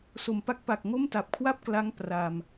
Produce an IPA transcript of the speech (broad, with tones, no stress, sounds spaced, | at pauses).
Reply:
s o˨˩ m p a˦˥ k̚ p a˨˩ k̚ ŋ o˥˩ m t a˨˩ p̚ kʰ w a˥˩ p̚ k l a˦˥ ŋ p r a˧ m